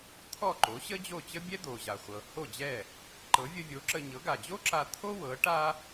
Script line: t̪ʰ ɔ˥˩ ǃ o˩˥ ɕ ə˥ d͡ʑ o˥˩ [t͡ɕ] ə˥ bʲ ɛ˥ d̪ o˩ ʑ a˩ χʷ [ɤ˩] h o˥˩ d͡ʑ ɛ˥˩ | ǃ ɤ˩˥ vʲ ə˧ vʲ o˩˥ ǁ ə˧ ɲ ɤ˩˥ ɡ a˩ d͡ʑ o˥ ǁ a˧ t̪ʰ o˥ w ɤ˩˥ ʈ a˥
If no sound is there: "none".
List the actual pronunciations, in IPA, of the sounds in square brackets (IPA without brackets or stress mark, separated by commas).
t͡ɕ, ɤ˩